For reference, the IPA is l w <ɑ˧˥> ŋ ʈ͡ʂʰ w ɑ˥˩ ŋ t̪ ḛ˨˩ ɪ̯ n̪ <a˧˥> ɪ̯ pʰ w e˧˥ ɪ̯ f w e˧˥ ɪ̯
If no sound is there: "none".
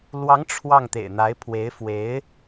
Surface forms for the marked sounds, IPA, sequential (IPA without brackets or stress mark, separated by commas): ɑ˧˥, a˧˥